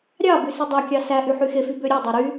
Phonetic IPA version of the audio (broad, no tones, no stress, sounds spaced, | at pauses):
ɾʲ ɑ b y s i dˤ ɑ kʲ ɑ s æ ʔ y ħ y x e f y b ø ɾʲ ø dˤ æ ɾ y